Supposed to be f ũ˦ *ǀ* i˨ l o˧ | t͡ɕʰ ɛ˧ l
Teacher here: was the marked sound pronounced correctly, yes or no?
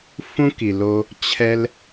no